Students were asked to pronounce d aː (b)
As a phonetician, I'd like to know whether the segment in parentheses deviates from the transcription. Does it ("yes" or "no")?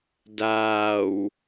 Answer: yes